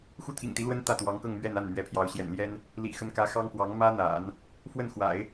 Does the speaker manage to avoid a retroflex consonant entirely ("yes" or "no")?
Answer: yes